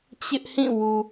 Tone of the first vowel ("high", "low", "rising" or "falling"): high